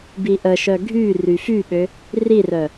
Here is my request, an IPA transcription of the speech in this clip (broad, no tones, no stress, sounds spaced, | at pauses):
b i ʔ ə ʃ œ ɡʱ y r y f y ɓ ø | r i r œ